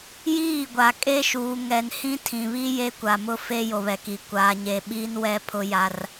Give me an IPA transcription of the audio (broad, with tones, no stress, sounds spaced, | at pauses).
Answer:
j iː˦˨ ɡʷ a˨ kʼ e˦ ʃ uː˨ ŋ ɛ˨ n h ĩ˦ tʰ ĩ˨ β i˦ j e˦ kʷ a˨ m ʊ˦ f e˦ j o˨ β ɛ˨ k i˨ kʷ aː˨ ɲ e˨ ɓ iː˦ n w ɛ˦ pʰ ʊ˦ j a˦ r